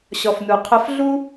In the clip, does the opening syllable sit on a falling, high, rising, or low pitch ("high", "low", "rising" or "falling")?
low